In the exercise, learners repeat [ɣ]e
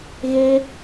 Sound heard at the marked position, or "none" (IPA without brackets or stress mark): ɣ